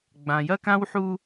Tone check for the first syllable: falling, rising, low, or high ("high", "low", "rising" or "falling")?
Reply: low